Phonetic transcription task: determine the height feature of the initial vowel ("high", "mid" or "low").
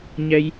mid